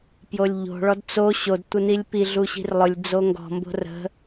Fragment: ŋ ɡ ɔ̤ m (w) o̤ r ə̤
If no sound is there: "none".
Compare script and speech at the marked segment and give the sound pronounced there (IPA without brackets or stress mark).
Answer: b